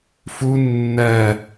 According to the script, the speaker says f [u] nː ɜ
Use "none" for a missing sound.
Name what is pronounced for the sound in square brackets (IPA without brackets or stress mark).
u